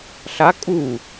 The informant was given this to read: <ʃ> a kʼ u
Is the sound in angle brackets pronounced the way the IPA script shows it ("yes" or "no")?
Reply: no